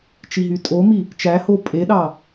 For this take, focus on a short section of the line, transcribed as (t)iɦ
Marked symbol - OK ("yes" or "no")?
no